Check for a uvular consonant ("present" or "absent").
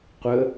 present